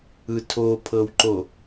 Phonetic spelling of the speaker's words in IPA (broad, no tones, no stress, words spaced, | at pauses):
ɯtʰopʰɤwǃo